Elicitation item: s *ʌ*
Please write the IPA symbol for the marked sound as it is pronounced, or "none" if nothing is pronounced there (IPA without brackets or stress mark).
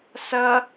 ʌ